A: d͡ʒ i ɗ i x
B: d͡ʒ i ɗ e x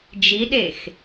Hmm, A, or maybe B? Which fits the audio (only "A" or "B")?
B